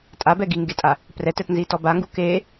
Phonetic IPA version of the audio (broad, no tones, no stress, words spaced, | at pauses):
tʼabɛ ɡiŋɡetʼa | prɛtɛtnzitɔ baŋɡu ke